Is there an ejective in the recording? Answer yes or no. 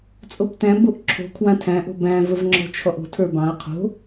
yes